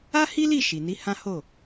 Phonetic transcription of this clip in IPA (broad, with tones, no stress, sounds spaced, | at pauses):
a˦ h i˦ l i˦˨ ʃ i˨ n i˨˦ h ã˦ h o˦˨